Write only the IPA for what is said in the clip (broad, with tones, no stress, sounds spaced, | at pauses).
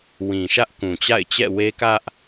w ĩ˨ ʃ ä˦ ʔ k ũ˨ t͡ɕ a̰˦˨ ɪ̯ t͡ɕ ɛ̰˦˨ w e˦ k ä˦ ʔ